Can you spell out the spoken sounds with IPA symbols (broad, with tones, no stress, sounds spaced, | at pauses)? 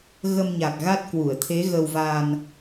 ɣ ə˧ m ɲ a˨˩ k̚ ɣ a˦˥ t̚ k w u˧˩ ə̯ t̪ʰ e˨˦ ɣ ə˧ w v a˧ n